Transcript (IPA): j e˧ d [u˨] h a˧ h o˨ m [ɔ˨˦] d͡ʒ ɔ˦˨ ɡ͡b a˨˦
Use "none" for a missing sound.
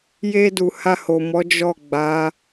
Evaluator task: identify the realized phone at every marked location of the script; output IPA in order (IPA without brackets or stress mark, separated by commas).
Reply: u˨, ɔ˨˦